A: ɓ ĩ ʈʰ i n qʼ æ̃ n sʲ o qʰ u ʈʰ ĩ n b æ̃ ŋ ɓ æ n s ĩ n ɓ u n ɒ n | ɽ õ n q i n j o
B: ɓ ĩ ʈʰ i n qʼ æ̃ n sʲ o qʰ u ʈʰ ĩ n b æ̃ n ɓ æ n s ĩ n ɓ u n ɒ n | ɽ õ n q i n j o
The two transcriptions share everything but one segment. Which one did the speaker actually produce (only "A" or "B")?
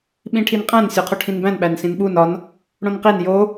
B